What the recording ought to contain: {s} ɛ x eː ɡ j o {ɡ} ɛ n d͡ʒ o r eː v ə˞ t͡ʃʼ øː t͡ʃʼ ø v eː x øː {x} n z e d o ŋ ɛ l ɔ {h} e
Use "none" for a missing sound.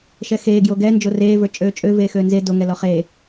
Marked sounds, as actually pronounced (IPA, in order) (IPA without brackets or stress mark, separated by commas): ʃ, ɡ, none, χ